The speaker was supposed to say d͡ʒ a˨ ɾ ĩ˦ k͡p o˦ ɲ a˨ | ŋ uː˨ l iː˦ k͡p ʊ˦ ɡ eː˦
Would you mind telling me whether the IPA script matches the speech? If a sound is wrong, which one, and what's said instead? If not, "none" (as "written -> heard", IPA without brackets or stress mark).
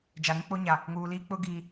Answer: eː˦ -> iː˦